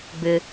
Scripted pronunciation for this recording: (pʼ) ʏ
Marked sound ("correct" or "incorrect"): incorrect